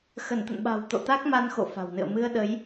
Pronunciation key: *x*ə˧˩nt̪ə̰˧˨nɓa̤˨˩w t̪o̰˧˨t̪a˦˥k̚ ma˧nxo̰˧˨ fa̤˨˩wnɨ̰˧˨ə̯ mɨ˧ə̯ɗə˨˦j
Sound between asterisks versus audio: correct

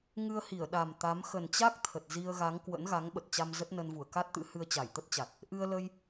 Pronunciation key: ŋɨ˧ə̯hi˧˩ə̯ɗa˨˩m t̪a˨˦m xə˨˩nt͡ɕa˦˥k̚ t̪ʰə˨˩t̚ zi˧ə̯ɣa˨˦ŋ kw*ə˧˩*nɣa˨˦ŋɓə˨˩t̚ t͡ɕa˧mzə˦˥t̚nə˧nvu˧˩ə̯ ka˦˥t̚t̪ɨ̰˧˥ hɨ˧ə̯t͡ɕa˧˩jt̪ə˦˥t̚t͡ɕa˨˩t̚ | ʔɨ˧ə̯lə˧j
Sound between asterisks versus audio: incorrect: ə̰˧˥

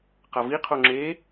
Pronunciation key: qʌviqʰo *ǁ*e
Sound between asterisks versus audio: incorrect: ŋ͡ǁ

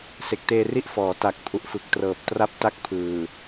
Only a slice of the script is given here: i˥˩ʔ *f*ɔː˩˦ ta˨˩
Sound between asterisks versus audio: correct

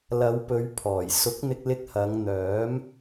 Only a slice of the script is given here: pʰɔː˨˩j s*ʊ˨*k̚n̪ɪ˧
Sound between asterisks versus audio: incorrect: ʊ˨˥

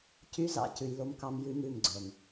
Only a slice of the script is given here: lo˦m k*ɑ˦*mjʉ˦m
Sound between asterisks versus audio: correct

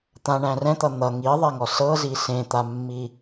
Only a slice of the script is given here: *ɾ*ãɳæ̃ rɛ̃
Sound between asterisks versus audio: incorrect: t̪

